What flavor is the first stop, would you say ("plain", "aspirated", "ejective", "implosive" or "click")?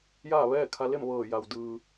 aspirated